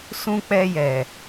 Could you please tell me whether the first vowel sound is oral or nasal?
nasal